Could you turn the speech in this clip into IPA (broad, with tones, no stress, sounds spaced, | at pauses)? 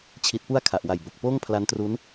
t͡ɕʰ i˨˩ t̚ p u˦˥ a̯ kʰ a˨˩ ʔ w a˨˩ j b o˨˩ k̚ p oː˥˩ ŋ pʰ l a˦˥ n t r u˦˥ n